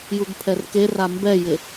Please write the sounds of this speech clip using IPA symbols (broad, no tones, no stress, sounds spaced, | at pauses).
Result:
j u ɡ pʰ ɛ r k e r a m b ɛ j ɪ